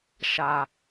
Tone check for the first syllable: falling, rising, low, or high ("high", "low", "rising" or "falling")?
low